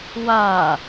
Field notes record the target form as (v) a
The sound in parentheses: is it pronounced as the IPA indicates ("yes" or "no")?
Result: no